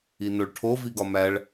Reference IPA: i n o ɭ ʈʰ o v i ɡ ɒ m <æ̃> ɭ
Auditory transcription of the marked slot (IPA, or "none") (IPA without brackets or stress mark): æ